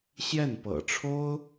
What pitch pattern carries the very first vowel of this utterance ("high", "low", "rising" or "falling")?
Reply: falling